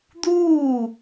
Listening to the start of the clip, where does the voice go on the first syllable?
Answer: falling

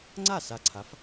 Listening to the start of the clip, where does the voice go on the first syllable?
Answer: falling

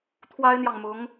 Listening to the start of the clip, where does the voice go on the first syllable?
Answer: high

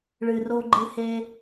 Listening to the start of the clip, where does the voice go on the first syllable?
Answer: low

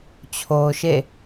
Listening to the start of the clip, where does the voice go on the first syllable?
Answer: low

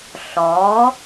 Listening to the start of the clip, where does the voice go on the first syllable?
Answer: rising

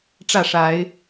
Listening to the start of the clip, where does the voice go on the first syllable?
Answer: falling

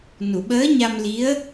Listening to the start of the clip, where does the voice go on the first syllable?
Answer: low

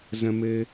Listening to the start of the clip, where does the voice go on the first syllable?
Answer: high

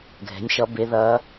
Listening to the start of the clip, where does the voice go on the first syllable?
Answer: rising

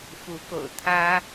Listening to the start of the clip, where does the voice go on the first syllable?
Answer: rising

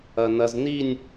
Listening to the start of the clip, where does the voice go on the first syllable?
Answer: low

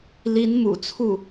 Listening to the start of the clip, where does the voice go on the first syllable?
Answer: rising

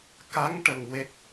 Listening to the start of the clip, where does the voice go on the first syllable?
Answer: rising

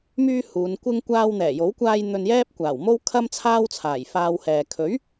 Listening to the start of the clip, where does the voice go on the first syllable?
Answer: high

